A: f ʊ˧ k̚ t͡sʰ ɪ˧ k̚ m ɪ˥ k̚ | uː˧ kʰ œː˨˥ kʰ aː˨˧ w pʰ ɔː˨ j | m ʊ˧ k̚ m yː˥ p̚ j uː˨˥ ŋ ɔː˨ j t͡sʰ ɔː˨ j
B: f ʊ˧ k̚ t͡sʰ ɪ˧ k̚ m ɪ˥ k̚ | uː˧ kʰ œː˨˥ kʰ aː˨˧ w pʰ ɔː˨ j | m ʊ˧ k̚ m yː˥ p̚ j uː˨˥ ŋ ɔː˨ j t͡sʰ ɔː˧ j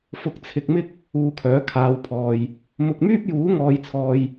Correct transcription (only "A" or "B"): A